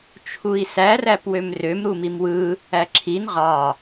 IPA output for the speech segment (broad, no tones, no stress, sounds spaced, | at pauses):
t͡ʃʰ u i̯ s æ r æ p w ø m r ø m ɾ u m i m w ɯ | æ ǁʰ i n ʁ ɑ